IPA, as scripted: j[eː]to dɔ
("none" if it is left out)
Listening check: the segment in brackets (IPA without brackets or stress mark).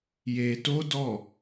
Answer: eː